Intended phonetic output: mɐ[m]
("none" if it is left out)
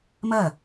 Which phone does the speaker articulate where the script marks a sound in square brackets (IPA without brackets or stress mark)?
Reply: none